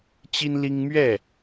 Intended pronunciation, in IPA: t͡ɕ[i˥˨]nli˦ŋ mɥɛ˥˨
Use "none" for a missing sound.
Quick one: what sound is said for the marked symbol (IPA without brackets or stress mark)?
i˦